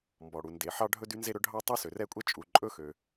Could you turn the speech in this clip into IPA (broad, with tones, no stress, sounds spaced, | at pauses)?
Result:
m b ɔ˩ ɽ u˩ n d e˩ ħ ɑ˥ ɖʱ ɵ˥ d y˥ n z e˥ ɾ ɵ˥ ɖʱ ɑ˥ tˤ y˥ s ø˩ r ɛ˥ kʷʼ ɛ˥ t͡ʃʼ u˩ ǃʼ ɵ˥ x ø˩